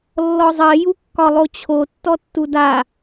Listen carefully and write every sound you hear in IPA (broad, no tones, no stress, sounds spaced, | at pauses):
lː ɔ zˤ ɜ j u kː ɒ lˠ o t͡ɕʰ o tː ɔ tː u d a